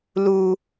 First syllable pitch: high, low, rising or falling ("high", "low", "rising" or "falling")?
high